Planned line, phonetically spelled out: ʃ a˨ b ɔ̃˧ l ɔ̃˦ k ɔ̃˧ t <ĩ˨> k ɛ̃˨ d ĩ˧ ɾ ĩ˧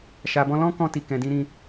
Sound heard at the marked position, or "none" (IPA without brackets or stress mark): i˨